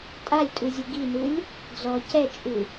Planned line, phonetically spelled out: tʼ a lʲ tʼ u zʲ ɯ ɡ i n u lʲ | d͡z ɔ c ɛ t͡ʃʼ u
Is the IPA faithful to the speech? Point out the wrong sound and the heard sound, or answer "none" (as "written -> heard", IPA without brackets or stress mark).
none